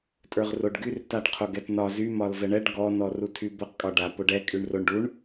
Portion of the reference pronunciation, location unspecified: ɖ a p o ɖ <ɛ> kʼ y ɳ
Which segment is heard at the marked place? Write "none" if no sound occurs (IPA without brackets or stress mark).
ɛ